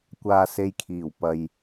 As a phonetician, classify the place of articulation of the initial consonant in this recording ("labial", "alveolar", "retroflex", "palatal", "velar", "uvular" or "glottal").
velar